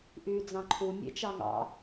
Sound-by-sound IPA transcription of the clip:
ʔ yː d͡z ɑ̃ ǃʰ u mʲ ḛ t͡ʃ ɑ ŋ ɑ̰

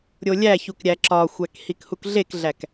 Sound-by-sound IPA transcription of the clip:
ɾʲ o lʲ æ ç u k ɾʲ æ ǁ ɒ xʷ æ k h i k h u k ɮ e k ɮ æ k

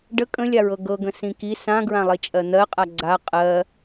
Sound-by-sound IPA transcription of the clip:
ɖ ə kʼ ə̃ lʲ a ɹ ɤ ɡ ɤ ɡ ə̃ s ĩ k i s ã ɡ ɹ ã lˠ i t͡ʃʼ ɜ n̪ ɜ qʼ a ɡ͡ǀ a qʼ ɜ

